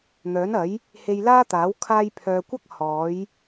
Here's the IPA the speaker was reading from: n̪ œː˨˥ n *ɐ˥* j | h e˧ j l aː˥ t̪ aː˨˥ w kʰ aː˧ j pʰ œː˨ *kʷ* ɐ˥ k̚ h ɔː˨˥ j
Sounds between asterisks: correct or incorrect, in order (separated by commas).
incorrect, correct